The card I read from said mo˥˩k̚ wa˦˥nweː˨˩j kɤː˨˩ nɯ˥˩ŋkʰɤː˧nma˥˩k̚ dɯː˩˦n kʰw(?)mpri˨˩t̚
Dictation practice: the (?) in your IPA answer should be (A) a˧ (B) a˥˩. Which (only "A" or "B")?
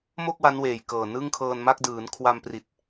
A